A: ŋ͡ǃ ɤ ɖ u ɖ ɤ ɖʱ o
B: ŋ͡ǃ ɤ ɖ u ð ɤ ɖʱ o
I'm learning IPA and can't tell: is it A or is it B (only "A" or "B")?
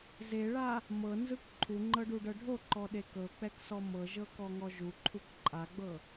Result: A